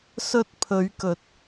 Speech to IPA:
sɵ˧t̚ pʰɵ˨˧ɥkɵ˨˥t̚

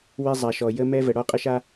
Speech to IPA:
we˦zˤa˨ʃɔ˨ jə˦ mɛ˦və˨ ɽɔ˦˨qʼə˦ʃa˦

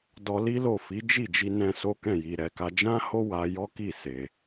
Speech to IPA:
dɔ˧li˦lo˦˨fi˨˦ d͡ʒi˦˨d͡ʒi˧nɛ̃˧ so˦kɛ̃˦˨ji˨ ɾɛ˨ka˧ d͡ʒã˦ho˦ wa˧jɔ˦ki˦˨ se˧

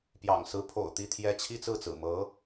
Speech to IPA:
pjɑ̰˨˩ŋsɹ̩˧˥pʰo̰˨˩ʊ̯ t̪i˥˩t̪ʰjɛ˥ t͡ɕʰi˥t͡sɹ̩˥˩t͡sɹ̩˨˩ mɤ˧˥

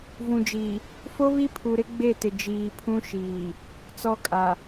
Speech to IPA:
vũ˨d͡ʒiː˨ | fo˦βi˦ pʰu˨ɾɪ˦ɡ͡be˦˨tɪ˨ d͡ʒiː˨pʰũ˦ʃiː˨ | t͡sɔ˦kʼa˨

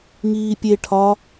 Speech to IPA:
ŋiːpʲe ʈʰɒ

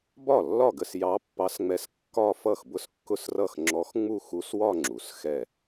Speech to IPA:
bɒ˥˩lːɒ˥˩ ɡə˥˧sjɑ˧˥pːɑ˧˥sŋ͡mɛ˧˥s kːɒ˥˧ fʌ˥˩xbʊ˥˧skːʊ˥˩srʌ˥˩x ŋ͡ǁɔ˧˥xŋ͡mu˥˧xu˧˥swɒ˥˧ ŋ͡ǁu˩˧s xɛ˥˩

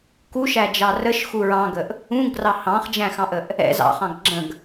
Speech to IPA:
kuʃæd͡ʒɑ rəʃxu ɹɑ̃ɡəʔ | ũɡrɑ hɑ̃χd͡ʒæ̃xɑ̃ʔəʔ | ɛ̰ zɑ̰χɑ̃ɡ ɡ͡ǁə̃ɡ

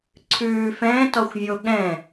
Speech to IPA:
ǀʰʉː fɛ̃ːtɔxʷvʲo ɠɛ̃

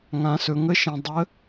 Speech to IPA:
ŋã˩˧sɵ˩˧ŋə˧˥ʃə̃˩˧ dˤə˧˥

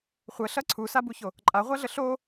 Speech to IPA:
χʷəɬɐ ǀʰusabuço | ǃʼaʁʷaɮə ɬo

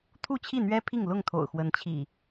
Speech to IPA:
t̪ʰu˥˨t͡ɕʰi˥˨n̪ɥɛ˦ pʰi˥˨ŋlʊ˥˨ŋ t̪ʰo̰˨˩ʊ̯xwə˨˦nt͡ɕʰḭ˨˩

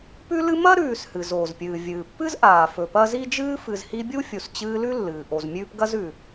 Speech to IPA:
pʉ˦lɨ˦mɐ˥ ɾʉː˨shɨ˩z oː˩zpʲɨː˩ vʲɨː˩pːɨ˥zʔaː˩ fɵ˨pɐ˦zi˥d͡ʒɨː˥ fɨ˨zhi˦bʲu˥ fʲu˨st͡ɕɨː˦lʉ˥lːɨː˩ ʔo˨zmʲʉː˦pɡɐ˥z ʉ˩

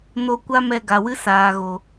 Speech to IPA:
no˧kʷa˦mɛ˧ ɡa˨wɨ˦ saː˨ɣo˨

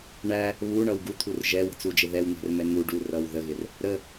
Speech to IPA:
ɳæ | βuɳʌw ɡut̪ʰur ʒɛwə̤t͡sud͡ʒɪ ðɛwn̪ɛ̤rmɛ n̪u ɖurʌw ðəɣɪr | ɾə

